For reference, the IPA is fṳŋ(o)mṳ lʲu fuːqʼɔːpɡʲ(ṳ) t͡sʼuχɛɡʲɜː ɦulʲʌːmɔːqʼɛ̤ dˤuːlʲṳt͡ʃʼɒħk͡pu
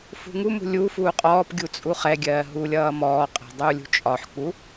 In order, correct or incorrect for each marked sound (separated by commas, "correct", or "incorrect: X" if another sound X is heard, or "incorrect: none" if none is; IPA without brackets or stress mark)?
incorrect: u, incorrect: u